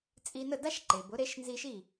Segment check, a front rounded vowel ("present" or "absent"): absent